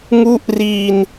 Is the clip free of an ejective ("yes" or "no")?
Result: yes